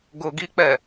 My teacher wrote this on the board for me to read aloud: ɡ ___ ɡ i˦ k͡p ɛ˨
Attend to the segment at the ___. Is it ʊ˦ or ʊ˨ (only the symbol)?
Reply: ʊ˨